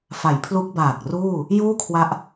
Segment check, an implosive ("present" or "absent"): absent